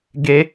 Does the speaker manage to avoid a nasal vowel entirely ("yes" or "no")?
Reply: yes